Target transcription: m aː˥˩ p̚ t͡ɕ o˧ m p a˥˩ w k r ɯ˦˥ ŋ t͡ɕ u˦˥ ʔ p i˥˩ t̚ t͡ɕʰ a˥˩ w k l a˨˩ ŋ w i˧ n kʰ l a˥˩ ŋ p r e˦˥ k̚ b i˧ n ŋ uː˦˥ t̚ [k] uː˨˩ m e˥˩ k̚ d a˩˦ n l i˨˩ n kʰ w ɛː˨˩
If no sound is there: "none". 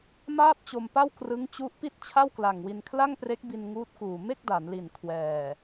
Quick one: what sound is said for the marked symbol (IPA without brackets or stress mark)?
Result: k